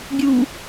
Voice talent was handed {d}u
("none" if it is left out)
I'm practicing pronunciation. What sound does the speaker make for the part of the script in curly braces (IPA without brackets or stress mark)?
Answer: ɡʲ